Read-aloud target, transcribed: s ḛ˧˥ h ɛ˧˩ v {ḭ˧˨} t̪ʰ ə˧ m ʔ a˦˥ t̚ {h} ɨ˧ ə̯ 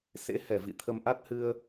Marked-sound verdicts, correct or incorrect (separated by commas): correct, correct